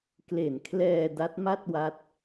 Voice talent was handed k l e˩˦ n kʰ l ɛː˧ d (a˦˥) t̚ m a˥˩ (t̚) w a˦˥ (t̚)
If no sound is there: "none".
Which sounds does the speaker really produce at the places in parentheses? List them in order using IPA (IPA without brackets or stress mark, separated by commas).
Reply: a˦˥, t̚, t̚